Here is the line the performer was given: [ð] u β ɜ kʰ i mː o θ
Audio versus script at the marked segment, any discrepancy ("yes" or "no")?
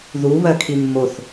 no